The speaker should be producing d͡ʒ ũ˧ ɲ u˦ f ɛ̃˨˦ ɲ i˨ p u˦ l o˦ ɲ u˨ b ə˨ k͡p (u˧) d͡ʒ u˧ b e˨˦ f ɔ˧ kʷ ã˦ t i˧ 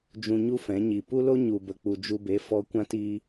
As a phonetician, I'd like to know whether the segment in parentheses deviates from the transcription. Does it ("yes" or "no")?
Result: yes